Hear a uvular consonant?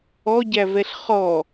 yes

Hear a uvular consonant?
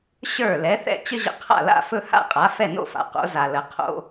yes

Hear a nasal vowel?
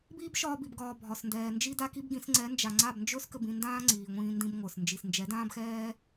yes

